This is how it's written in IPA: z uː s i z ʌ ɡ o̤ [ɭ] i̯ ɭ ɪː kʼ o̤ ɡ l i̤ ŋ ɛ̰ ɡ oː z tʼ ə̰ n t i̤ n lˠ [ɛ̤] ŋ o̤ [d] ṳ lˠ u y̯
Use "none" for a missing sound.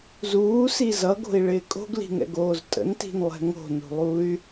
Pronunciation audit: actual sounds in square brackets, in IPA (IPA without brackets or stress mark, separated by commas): none, ɛ̤, n